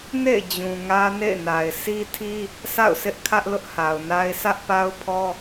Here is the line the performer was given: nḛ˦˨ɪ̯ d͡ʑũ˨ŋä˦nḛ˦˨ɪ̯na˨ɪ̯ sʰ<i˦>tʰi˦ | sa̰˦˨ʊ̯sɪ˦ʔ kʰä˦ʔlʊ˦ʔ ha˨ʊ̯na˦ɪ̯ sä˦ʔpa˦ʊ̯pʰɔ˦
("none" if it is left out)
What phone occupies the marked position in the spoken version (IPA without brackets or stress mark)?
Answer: i˦